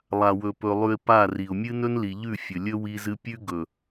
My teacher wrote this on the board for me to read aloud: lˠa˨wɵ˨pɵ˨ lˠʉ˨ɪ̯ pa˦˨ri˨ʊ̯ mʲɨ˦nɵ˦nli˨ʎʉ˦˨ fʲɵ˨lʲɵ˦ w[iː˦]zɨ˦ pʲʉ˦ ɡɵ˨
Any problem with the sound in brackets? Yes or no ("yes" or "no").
yes